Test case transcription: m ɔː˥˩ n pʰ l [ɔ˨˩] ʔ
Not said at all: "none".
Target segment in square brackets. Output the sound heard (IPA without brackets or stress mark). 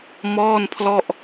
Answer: ɔ˥˩